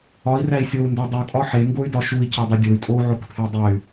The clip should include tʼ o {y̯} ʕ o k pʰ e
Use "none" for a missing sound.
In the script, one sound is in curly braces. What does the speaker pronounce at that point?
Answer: u̯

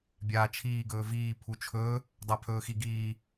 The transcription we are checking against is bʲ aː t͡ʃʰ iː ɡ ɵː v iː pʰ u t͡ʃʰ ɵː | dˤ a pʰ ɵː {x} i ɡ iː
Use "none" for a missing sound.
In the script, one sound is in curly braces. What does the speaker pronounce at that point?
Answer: x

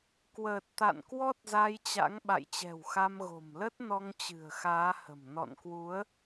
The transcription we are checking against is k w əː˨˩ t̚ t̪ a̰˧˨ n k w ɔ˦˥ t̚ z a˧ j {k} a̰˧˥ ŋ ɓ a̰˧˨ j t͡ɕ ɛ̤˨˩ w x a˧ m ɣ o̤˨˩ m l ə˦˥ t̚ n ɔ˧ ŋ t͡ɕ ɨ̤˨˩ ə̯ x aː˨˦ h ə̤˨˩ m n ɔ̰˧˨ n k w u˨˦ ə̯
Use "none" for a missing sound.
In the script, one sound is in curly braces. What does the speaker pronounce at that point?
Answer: t͡ɕ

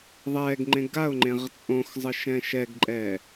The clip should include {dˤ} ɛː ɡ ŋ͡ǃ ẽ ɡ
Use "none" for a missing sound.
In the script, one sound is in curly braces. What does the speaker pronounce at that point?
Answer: ðˤ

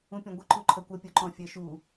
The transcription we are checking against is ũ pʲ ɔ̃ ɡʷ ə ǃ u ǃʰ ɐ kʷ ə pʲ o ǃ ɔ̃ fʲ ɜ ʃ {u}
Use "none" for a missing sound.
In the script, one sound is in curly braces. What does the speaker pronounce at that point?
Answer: u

